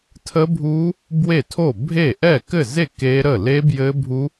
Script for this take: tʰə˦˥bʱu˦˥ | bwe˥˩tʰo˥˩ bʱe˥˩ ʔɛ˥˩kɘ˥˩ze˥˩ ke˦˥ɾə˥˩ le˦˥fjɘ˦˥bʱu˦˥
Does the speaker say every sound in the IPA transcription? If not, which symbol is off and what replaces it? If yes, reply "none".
f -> b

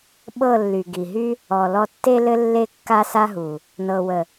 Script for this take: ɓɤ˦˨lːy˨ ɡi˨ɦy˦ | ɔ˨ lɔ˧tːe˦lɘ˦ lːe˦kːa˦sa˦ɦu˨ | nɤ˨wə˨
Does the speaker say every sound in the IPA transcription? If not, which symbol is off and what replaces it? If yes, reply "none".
none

